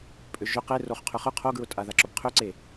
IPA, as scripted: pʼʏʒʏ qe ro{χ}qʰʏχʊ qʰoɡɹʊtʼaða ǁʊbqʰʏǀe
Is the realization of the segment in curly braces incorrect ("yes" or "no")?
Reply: no